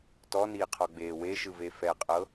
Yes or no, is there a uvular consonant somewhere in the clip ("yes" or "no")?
yes